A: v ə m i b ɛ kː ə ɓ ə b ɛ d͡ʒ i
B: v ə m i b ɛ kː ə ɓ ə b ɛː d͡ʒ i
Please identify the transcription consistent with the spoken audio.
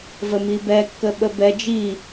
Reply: A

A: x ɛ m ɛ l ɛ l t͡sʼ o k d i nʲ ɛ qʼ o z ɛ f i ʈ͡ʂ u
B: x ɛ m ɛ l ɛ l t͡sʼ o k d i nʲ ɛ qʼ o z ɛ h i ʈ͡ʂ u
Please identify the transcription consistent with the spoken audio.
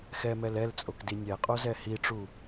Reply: B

